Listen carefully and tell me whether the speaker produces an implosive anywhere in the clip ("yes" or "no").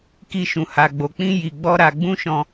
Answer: no